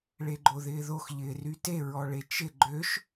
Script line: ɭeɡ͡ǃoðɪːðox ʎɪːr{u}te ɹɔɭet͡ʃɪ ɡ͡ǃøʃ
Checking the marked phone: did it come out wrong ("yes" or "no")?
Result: yes